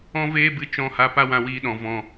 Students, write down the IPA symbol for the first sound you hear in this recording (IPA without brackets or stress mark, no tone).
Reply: ɔ̃